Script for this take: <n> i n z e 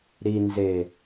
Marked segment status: incorrect: ɾ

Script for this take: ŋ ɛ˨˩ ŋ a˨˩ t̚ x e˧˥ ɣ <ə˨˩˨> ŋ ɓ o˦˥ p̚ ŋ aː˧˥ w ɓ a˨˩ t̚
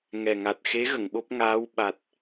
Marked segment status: correct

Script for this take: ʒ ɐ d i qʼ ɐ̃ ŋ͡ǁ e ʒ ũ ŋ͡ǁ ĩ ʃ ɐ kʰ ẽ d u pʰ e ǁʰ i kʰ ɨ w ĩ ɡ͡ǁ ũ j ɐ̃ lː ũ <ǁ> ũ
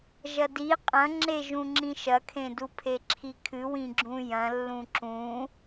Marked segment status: correct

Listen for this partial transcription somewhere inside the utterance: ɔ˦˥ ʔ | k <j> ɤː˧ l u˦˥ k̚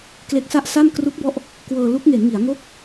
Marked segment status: incorrect: w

